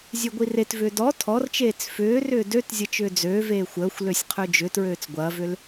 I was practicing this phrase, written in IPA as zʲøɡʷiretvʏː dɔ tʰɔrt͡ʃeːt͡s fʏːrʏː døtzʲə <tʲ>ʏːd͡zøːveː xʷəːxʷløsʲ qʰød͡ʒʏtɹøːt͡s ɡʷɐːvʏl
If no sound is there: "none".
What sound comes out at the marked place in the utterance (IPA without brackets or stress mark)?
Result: t͡ʃ